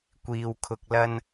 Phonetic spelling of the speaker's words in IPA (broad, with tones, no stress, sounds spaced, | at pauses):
kʷ iː˨ w kʰ ʊ˨ k̚ l ɐ˧ n